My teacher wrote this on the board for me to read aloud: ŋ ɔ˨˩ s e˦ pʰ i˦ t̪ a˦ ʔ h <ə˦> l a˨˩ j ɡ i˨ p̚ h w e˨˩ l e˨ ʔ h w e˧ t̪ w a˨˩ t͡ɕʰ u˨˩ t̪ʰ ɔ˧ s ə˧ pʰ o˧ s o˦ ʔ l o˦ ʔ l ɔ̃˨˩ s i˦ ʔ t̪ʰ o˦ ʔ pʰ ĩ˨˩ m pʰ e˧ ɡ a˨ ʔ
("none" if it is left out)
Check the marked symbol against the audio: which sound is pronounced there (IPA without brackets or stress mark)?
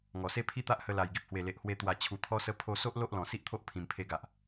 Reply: ə˧